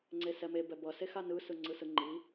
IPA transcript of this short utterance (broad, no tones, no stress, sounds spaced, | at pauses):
ŋ͡ǀ e s ɛ m e b ɛ b ʌ s e x a n ɯ s ɯ ŋ͡ǀ ɯ s ɯ ŋ͡ǃ i